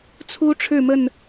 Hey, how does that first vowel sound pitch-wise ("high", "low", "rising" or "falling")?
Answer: high